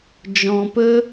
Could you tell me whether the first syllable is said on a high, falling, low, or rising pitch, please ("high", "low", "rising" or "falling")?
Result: low